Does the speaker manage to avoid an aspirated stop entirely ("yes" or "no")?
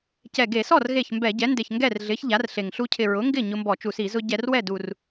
no